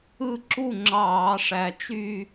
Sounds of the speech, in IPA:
ɯ˥˩ ǁu˥˩ ŋ͡ǁɑː˧˩˧ʂæ˨˩t͡ʃy˥˧

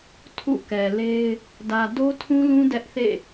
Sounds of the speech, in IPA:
tʰṵ˦˨kɛ˨le˦ɪ̯ | dä˨do˦tʰũ˦lũ˦ dɛ˦ʔθḛ˦˨

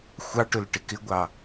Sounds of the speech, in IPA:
xʷɑʈʊl ʈɪkɪɡʷɑ

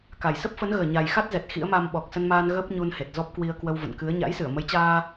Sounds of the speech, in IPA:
ka˨˩jsə˦˥p̚fə˨˦nɣəː˨˩ ɲa˨˩jxa˦˥t̚ zɛ˨˩t̚xḭ˧˥ə̯ma˧m ɓɔ˨˩k̚sə˧nmaː˧n ɣəː˦˥p̚ɲu˧n he˨˩t̚zɔ˦˥p̚kwi˧ə̯kwə˧w və̰˧˨nkɨ˨˦ə̯ ɲa̰˧˥jsɨ˧˩ə̯mə˨˦jt͡ɕaː˧

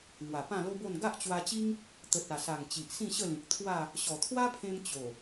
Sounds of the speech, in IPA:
ŋwa˨˩pã˥˧lo˦bo˥˧n ɡa˦ʔt͡ɕwa˧t͡ɕi˦ŋ | t̪ə˨t̚a˨˩sa˨˩ŋ t͡ɕi˨ʔsĩ˥˧ɕə˥˧lĩ˨k̚ t̪ʰwa˥˧ | ɕɔ˨˩t̪ʰwa˦pʰẽ˧m t͡ɕo˨˩

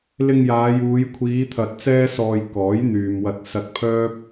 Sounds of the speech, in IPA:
lɪ˧ŋjaː˨˧juː˨˧j kʷʰiː˨˧ t̪ʰɐ˧t̚t͡sɛː˥sɔː˧j kɔː˨˥j n̪yː˨mwɐ˧t̚ sɐ˧t̚ pʰœː˥p̚

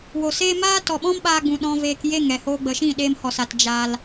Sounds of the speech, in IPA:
wo˨se˦ maː˦tɔ˨ɓɔ̃˦mɓaː˧ ɡ͡bũ˨ɗɔ̃˧veː˧k je˦˨ŋɛ˨hoː˧ ɡ͡bə˨ʃĩ˦˨ ɗeː˧mhɔ˨sa˨t d͡ʒa˧l

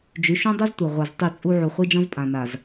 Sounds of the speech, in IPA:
d͡ʒy˨˦ʃũ˦dˤu˦ztʷœ˨ ʁʷa˨z tˤy˦˨t͡sʼu˦ ʕu˨χʷi˦d͡ʒɔ̃˦z pʼã˨na˨z

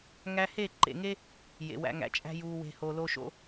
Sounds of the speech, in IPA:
ŋæ˧he˦˨ǃḛ˨ŋe˦ | jḛ˨wæ̰˧ŋæ̰˨t͡ʃʼæ̤˦ juː˨we̤˨ ho˨lo˧ʃo̰˧

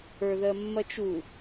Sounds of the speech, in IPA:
ə˞ðɜmːɐt͡ʃu

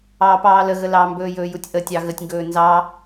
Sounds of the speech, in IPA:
ɑːpɑːləɣə lɑmbɵːjɵː jutʲʔətʲɑ ɣətʲŋɡɵː nzɑ

